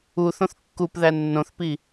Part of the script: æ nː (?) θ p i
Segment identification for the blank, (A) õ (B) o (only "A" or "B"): A